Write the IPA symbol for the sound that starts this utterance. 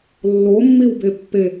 lː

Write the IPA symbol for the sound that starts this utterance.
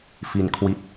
f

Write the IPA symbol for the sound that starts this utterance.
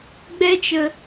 ɡ͡b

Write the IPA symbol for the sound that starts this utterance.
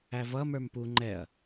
æ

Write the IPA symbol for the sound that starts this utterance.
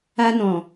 a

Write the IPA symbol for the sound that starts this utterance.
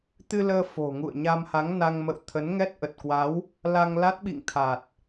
t̪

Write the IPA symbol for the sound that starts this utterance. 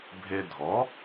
bʱ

